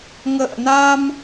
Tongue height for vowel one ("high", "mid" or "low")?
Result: mid